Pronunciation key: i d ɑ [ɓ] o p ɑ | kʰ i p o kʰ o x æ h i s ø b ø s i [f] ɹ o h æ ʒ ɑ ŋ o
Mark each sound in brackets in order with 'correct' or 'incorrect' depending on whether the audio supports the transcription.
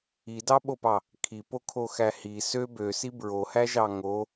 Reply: correct, incorrect

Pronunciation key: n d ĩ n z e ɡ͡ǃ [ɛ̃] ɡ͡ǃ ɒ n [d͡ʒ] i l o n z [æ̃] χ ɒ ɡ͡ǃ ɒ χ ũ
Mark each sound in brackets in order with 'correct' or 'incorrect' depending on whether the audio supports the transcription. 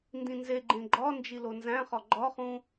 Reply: incorrect, correct, correct

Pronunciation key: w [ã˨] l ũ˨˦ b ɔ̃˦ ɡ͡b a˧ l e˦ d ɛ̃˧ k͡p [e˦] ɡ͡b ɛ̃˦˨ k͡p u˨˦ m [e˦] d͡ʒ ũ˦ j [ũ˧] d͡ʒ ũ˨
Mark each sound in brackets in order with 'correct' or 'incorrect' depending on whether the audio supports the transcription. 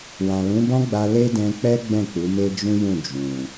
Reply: correct, incorrect, correct, incorrect

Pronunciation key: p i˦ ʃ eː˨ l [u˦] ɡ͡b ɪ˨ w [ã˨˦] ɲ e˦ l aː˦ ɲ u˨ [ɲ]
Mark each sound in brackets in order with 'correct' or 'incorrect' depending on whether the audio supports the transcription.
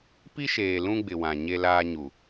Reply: incorrect, incorrect, incorrect

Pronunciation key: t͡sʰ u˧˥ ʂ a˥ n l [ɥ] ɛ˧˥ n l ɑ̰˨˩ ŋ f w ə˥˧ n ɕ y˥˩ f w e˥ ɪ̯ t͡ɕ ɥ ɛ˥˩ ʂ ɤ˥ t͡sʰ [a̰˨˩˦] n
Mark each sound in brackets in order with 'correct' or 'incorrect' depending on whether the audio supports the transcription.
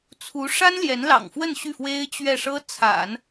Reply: incorrect, correct

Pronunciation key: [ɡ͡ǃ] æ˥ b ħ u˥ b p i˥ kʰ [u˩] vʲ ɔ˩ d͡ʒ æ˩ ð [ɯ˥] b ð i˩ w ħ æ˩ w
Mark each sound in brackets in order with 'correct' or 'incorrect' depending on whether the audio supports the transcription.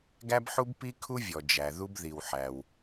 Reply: incorrect, incorrect, incorrect

